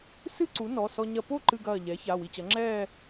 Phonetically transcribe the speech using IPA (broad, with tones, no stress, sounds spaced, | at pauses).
s ɨ˥˧ ǀ u˩˥ n ɔ˩˧˩ s ɔ˧ ɲ ɐ˧ p o˥˧ ǃ ɨ˧ ɡ ɐː˧˩ ʎ ɛ˩˥ ç a˩˧˩ w i˧˩ t͡ɕ ɐ˩˥ ŋ͡ǁ ɛː˥˧